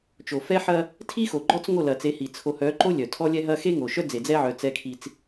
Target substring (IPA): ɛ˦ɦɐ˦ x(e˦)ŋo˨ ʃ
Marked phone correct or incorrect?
correct